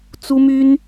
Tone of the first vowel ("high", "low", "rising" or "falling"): high